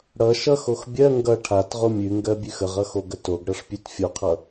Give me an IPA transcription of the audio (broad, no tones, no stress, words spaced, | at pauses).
ɽʌ ʃʌxox bʲɜ ŋɡʌ ʈʰatʁo mʲʉŋɡɜbʲʉx əʁʌxoɡə toɡɽʌʂpʲʉt fʲoqʰʌ